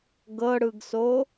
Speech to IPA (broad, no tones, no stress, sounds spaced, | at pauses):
ɡ ɤ ɽ ɯ ɡ s o